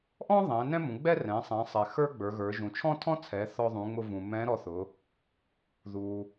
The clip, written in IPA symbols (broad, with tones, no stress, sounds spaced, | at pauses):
ʔ ɔ̃˥ ðˤ ɛ̃˩˧ n ɛ̃˥ m ũ˩˧ ɡ͡b ɛ˥ r ɛ̃˩˧ sˤ ɛ̃˩˧ sˤ ɛ˩ x ə˞˥ ɡ͡b ə˞˩˧ ɣ ə˞˩˧ ʒ ũ˩ t͡ʃʰ ɔ̃˥ tʰ ɔ̃˥ t͡sʰ ɛ˩˧ θ ɔ˧ ðˤ ũ˩˧ ŋ͡m ʊ˧ v ũ˩ m ɛ̃˧˥ ɾ ɔ˧ θ ʊ˩˧ | ð u˩